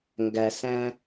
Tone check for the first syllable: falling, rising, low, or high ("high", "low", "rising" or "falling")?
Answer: low